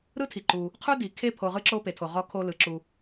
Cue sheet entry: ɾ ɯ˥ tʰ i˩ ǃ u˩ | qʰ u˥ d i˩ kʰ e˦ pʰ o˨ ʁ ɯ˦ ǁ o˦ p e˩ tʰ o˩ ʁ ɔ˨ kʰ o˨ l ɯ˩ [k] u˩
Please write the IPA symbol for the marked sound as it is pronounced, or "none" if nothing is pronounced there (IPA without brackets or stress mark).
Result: ǁ